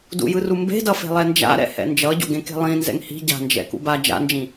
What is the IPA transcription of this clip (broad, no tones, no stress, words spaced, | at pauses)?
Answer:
dṵjɯru mbe̤dʌfe̤lˠɛ nd͡ʒa̰ɾɛ̰hɛ̰ nd͡ʒʌɟo̰ɡẽke̤ lˠĩnzɛ̰ŋ hi̤ ɟa̤nd͡ʒɛ̰kṵ ba d͡ʒa̰nd͡ʒĩ